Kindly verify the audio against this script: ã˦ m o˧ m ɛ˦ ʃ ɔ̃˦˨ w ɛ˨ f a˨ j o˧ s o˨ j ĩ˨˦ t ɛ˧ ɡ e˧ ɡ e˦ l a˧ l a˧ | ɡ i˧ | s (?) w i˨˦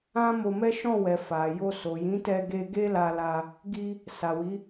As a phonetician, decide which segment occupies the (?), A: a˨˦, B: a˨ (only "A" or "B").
B